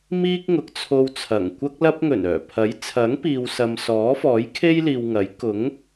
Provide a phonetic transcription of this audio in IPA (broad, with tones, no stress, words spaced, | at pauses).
miː˥k̚ŋʊ˨˥k̚t͡sʰo˧wt͡sʰɐ˨˩ŋ kʷɐ˥k̚lɐ˥p̚ ŋɵ˨˩nœː˨˩pʰɐ˨˥jt͡sʰɐ˨˥ŋ piː˨wsɐ˨msɔː˨˥fɔː˨˥j kʰe˥jliː˨wŋɐ˨˥j kʊ˨˥ŋ